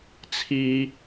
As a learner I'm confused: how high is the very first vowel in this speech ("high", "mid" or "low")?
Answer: high